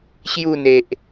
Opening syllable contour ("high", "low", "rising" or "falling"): falling